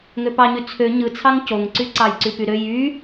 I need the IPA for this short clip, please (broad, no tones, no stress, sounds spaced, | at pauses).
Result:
ŋ ø p ɑ ɲ y t͡sʰ ø ɲ ɯ t͡sʰ ɑ ŋ c o ŋ ǀ y ǀ ɑ j ǀ y p y ɾ ø j y